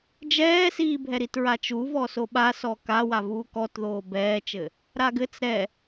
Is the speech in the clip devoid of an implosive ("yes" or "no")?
no